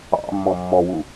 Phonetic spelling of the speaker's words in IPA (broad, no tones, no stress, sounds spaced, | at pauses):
ɑ̰ mː ɔ mː ɔ w u